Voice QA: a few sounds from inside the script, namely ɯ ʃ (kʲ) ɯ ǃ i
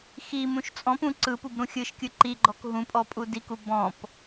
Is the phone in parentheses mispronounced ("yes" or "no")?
no